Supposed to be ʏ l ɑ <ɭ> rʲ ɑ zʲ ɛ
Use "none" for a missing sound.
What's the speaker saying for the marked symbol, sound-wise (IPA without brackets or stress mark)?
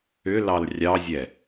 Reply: l